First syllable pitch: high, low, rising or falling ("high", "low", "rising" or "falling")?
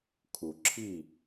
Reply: low